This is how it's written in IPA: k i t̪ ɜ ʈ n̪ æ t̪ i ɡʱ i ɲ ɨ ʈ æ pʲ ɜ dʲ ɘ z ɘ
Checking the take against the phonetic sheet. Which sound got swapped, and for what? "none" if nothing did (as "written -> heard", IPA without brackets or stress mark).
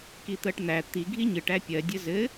none